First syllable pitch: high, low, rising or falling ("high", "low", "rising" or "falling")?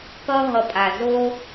high